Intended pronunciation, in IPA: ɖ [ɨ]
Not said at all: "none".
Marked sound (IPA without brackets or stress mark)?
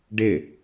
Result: ɪ